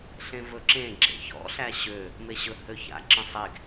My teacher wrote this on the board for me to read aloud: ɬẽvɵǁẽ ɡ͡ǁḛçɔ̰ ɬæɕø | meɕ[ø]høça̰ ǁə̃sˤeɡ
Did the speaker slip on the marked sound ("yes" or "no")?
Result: yes